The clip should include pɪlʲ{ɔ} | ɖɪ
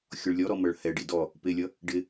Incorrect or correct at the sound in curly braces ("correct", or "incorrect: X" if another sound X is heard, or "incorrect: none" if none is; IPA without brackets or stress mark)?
incorrect: ʌ